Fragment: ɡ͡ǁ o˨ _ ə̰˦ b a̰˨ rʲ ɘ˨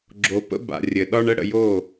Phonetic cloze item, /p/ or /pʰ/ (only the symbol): p